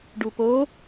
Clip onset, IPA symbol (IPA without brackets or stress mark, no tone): ɖ